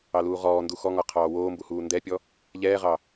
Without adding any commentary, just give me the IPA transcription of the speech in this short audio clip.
ɑ l uː ʁ ɔː n d u x ɔ ŋ ɔ qʰ ɑː w oː m b u h uː n d ɛ pʲ ɔ | ʎ ɛː ʁ ɑ

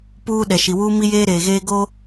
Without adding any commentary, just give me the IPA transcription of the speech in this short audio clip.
p uː˦ ɗ ɛ˨ ʃ i˨ w uː˦ m i˦ j eː˦ ɾ eː˨ ɣ eː˦ ɡ o˦

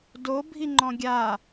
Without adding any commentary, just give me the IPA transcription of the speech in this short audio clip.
d o bʱ i ŋ͡ǃ ɔ̃ ɡʲ a

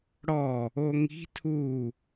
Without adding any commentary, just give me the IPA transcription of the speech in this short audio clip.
ɽ ɔ | o ŋ i̤ tʰ u

